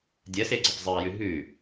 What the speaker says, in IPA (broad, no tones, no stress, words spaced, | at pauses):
dʲɐseɡ͡ǀɐp zˤɨɐ̯jʉ ɦʉ